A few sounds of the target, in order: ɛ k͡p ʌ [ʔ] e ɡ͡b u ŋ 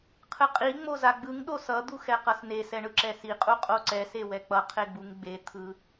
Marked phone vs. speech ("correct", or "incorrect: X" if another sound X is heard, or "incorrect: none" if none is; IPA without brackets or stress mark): incorrect: qʰ